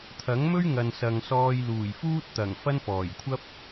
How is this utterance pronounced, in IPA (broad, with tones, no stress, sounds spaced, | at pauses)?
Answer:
t̪ʰ ɐ˨˥ ŋ m ɵ˥ ɥ ŋ ɐ˨ n s ɐ˨ ŋ s ɔː˧ j l uː˨˩ j f uː˥ t̚ t̪ ɐ˨˩ ŋ f ɐ˥ n f ɔː˨˩ j kʷʰ ɐ˥ p̚